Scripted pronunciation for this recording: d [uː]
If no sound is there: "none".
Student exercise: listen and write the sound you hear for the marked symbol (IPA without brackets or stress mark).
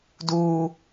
uː